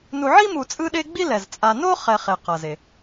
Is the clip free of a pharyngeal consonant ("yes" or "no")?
no